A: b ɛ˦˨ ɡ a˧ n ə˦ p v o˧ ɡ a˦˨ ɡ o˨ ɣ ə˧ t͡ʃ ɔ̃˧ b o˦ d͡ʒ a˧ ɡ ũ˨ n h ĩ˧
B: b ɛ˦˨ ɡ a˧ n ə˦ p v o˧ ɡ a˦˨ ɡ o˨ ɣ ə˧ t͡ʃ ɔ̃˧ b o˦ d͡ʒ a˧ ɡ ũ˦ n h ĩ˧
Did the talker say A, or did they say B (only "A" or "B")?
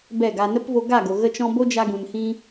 A